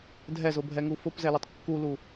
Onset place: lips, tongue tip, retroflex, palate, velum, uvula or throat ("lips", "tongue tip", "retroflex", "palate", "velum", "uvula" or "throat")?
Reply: tongue tip